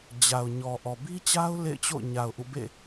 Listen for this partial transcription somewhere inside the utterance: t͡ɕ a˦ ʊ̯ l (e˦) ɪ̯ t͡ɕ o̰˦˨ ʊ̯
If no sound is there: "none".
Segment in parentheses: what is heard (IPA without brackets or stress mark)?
ḛ˦˨